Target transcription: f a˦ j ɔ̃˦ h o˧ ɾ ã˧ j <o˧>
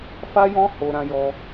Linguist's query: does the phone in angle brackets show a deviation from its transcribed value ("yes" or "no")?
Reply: yes